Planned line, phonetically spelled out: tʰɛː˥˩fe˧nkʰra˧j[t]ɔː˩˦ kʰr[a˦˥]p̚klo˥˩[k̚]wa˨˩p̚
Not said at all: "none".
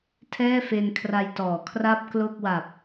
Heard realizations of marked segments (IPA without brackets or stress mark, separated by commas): t, a˥˩, k̚